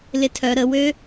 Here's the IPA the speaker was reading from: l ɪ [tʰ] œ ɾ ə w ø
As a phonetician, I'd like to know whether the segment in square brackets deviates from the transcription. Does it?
no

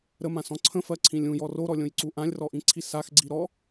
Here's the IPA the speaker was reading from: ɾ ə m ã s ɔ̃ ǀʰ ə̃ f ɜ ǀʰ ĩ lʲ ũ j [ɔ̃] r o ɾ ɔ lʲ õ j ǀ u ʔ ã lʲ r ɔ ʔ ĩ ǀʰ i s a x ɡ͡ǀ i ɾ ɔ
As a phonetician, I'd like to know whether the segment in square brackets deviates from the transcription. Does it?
yes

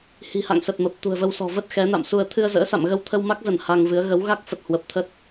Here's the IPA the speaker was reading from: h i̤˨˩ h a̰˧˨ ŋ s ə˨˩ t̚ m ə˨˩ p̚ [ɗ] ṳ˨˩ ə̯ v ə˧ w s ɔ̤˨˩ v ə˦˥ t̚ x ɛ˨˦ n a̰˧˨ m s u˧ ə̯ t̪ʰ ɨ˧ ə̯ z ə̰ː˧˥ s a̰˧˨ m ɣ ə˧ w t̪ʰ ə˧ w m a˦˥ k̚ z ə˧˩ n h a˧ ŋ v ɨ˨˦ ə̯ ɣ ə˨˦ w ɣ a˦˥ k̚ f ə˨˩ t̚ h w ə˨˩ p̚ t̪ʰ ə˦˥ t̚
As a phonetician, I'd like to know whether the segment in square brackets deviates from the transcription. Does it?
yes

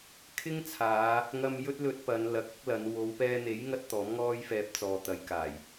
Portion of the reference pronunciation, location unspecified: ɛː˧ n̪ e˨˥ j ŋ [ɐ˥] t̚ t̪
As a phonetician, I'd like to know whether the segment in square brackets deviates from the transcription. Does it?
no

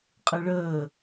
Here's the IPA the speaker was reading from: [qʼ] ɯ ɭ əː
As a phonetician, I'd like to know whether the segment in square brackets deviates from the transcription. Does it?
no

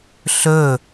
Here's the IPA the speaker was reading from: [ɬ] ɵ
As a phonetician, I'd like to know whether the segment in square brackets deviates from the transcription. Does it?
no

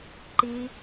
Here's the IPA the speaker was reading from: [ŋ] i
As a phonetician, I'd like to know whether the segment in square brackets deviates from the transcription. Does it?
yes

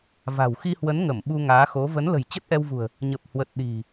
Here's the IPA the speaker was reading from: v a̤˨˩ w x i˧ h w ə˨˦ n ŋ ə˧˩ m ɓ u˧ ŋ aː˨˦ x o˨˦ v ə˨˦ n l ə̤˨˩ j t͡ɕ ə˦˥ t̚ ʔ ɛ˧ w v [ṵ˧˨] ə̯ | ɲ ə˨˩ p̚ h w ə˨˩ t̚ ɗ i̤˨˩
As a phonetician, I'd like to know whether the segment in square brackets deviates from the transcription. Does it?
yes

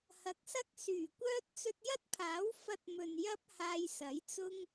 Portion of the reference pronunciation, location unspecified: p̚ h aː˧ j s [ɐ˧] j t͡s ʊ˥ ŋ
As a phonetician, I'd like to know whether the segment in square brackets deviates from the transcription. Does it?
yes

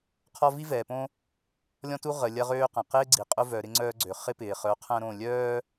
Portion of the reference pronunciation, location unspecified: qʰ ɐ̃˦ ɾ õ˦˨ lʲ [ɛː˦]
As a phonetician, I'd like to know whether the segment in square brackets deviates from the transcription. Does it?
yes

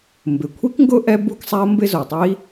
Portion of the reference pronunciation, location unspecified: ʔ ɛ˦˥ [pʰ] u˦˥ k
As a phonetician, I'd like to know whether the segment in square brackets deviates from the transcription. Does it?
yes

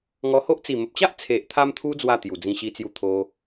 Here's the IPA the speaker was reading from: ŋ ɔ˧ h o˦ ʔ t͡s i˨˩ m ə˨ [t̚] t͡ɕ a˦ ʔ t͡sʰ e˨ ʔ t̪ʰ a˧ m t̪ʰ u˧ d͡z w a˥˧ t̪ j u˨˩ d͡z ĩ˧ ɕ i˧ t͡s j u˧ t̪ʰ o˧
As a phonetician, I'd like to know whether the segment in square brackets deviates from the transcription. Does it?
yes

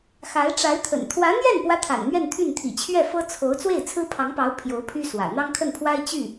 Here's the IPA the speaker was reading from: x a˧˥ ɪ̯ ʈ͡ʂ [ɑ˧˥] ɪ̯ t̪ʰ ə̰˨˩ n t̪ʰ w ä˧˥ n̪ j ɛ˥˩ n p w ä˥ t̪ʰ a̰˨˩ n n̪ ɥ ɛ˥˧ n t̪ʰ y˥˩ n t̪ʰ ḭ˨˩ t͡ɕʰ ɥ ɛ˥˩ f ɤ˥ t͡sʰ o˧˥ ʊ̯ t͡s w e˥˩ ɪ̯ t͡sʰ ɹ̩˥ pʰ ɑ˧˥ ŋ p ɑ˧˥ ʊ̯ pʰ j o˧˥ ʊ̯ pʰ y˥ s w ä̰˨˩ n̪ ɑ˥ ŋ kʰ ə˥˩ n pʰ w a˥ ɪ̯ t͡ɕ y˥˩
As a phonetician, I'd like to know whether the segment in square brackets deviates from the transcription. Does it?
yes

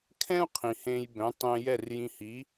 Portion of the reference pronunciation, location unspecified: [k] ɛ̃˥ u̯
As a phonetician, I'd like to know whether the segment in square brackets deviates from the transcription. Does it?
yes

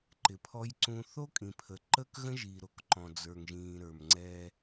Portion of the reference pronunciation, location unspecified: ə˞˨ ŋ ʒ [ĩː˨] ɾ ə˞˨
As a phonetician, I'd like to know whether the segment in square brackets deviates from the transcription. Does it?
no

